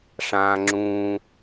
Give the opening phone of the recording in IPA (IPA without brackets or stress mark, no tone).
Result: ʂ